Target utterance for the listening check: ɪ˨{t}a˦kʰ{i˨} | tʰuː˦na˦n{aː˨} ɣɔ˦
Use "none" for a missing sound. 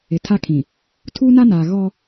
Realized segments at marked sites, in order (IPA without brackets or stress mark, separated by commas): tʰ, ĩ˨, aː˨